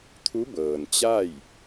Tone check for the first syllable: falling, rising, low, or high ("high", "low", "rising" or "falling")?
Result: rising